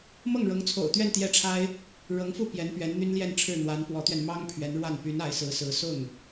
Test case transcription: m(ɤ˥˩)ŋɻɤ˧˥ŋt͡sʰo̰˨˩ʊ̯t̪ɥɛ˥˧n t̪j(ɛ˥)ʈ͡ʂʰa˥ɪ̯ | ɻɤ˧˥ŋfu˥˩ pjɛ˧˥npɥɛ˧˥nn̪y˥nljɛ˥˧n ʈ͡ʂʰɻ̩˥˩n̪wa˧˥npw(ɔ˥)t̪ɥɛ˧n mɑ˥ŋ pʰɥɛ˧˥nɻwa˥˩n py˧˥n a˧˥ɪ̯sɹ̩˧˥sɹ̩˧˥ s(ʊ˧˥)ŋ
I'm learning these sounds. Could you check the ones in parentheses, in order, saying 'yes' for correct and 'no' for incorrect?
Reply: yes, no, no, no

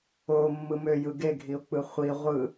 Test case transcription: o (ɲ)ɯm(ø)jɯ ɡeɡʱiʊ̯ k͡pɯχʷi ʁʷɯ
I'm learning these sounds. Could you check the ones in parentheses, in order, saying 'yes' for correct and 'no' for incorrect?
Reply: no, yes

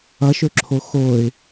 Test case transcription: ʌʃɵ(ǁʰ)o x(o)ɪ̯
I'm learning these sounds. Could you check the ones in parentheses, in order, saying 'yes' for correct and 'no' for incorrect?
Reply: yes, yes

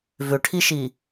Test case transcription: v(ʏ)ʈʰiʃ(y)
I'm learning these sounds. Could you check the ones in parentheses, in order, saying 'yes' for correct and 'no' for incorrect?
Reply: yes, no

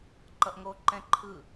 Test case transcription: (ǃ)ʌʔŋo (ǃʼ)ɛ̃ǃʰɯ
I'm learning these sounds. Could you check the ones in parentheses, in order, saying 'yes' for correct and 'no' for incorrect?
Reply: yes, no

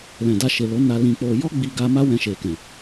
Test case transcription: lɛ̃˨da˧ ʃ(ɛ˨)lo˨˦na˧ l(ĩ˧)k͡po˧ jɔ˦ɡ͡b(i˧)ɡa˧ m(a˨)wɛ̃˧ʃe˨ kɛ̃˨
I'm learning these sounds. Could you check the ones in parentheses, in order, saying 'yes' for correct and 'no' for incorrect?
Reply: no, yes, yes, no

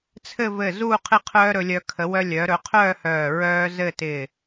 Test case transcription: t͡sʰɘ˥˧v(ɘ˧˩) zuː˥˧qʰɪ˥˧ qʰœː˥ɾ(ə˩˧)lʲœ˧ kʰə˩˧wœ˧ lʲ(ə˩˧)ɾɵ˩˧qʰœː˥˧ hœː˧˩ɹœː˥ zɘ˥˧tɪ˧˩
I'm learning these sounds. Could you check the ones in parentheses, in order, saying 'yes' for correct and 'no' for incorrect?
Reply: yes, no, no

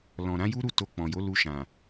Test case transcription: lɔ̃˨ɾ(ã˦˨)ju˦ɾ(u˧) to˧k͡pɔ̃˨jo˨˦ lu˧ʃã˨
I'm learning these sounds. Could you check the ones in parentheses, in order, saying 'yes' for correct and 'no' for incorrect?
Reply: no, no

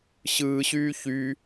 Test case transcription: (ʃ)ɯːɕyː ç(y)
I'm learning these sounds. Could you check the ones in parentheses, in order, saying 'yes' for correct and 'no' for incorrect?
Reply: no, yes

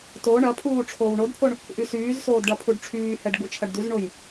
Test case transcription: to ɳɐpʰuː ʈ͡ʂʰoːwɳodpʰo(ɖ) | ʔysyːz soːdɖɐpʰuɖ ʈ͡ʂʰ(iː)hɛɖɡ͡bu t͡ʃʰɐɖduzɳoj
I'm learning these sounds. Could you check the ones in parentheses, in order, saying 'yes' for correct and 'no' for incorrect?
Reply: no, no

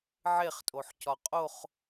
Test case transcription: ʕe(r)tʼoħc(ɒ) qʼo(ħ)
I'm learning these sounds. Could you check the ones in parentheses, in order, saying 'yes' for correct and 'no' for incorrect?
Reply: no, yes, no

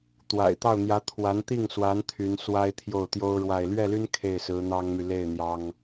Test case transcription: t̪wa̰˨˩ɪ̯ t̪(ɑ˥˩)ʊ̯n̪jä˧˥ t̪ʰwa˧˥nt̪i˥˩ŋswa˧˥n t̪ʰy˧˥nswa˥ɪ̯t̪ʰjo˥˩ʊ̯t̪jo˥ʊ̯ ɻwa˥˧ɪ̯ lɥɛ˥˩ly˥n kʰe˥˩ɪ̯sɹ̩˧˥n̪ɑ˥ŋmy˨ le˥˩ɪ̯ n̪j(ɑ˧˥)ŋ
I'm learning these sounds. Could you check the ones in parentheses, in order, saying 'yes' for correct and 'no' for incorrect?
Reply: yes, no

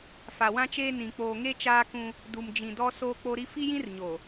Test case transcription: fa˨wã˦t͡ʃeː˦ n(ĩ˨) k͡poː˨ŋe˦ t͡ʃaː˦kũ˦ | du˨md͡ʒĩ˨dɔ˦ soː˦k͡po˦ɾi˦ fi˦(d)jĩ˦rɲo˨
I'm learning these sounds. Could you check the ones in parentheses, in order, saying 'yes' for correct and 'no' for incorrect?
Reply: yes, no

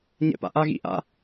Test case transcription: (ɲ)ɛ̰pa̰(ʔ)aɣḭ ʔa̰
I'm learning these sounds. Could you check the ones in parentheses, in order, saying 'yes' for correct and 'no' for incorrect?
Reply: yes, yes

